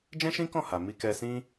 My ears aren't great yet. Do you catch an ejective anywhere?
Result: no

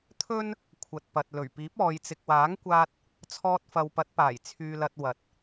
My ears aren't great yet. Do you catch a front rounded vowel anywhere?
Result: yes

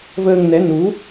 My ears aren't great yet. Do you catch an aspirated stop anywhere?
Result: no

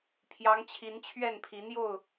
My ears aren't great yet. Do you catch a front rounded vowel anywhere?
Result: no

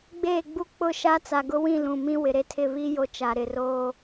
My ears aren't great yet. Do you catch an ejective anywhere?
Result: no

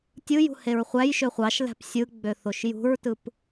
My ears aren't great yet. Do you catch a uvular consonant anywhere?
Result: yes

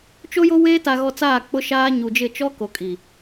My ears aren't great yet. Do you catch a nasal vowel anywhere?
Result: no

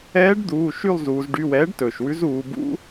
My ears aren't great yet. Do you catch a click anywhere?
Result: no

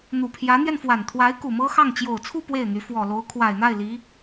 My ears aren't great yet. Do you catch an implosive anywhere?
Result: no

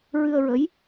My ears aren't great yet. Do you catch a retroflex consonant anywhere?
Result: no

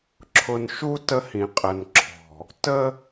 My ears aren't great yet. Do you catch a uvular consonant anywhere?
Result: yes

